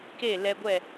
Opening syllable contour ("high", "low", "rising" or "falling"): falling